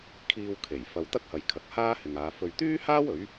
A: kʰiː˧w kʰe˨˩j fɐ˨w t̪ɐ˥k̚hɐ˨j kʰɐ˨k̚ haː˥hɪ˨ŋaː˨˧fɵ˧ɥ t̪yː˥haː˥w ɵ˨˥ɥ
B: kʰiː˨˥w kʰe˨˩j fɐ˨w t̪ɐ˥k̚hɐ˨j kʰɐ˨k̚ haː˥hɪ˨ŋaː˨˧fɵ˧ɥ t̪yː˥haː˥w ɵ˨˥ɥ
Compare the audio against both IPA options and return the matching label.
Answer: A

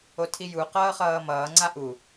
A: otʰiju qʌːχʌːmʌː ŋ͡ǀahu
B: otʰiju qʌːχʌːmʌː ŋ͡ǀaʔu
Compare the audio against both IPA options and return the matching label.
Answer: B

